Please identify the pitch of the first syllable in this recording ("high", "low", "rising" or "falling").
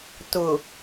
low